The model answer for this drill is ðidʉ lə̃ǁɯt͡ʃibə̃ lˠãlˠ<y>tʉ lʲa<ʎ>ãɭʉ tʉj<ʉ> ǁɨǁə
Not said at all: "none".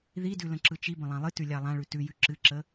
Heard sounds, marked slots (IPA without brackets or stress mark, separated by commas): ɨ, lˠ, ʉ